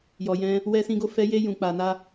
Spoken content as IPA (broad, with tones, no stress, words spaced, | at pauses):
jɔ˨jɛ̃˧ | wɛ˧sĩ˧ɡo˧ fɛ˧je˧ jũ˨k͡pa˨na˧